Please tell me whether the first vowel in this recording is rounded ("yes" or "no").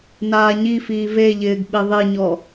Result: no